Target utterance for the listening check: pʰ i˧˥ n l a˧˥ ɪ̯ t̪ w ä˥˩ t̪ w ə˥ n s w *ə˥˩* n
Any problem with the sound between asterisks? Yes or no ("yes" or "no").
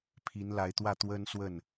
no